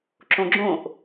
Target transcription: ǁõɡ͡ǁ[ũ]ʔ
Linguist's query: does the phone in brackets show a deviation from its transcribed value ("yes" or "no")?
yes